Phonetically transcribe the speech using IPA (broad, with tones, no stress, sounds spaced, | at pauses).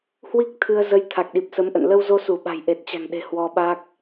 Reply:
h w i˦˥ k̚ t̪ʰ ɨ˧ ə̯ z ə˧ j t̪ʰ a˨˩ k̚ ɗ i˨˩ p̚ s ə˨˦ m ʔ ə̰˧˨ n l ə˧ w z o˧ s u˧˩ ɓ a̤˨˩ j ʔ e˨˩ t̚ t͡ɕ a̤˨˩ ŋ ɗ e̤˨˩ h w ɔ˧ ɓ a˦˥ k̚